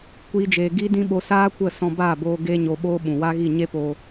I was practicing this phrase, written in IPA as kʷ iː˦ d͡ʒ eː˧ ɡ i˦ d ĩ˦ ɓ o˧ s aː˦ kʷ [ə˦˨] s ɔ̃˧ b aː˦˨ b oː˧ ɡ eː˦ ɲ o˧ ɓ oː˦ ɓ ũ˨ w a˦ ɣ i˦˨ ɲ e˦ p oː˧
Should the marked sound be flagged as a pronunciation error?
no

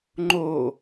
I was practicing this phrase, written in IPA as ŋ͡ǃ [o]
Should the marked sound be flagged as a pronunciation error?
no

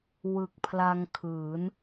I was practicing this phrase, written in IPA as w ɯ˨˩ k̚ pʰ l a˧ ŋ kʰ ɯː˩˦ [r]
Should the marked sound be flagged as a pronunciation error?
yes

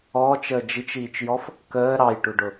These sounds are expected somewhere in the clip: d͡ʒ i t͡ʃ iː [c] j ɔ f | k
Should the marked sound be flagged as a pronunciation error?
yes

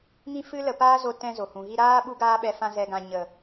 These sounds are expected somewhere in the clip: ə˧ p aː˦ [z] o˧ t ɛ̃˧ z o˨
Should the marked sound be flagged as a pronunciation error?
no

